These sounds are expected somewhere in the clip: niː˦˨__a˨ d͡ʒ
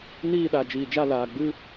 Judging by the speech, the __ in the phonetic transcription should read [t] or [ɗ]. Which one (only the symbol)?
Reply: ɗ